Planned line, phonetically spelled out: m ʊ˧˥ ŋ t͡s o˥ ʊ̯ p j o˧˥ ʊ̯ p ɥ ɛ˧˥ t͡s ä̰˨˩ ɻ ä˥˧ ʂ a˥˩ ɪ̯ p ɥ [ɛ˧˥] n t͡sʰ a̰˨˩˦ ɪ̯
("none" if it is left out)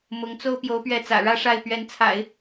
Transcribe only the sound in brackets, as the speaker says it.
ɛ˧˥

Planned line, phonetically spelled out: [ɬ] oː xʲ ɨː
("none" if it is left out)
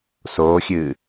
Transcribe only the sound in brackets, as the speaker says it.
s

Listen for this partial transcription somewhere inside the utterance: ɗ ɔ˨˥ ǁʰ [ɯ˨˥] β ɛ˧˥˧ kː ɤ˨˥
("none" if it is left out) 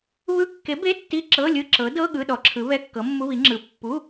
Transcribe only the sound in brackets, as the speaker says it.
ɯ˨˥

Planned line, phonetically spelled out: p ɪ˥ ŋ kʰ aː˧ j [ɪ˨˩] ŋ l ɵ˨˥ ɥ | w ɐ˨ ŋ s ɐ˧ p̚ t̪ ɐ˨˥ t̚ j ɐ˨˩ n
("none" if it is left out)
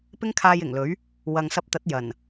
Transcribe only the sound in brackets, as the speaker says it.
ɪ˨˩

